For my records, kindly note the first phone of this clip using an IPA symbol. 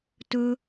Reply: t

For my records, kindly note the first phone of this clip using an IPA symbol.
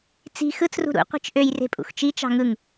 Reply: t͡s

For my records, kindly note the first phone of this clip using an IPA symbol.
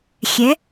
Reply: xʲ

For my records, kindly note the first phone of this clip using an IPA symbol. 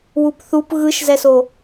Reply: w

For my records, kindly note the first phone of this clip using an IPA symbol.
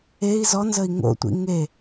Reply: e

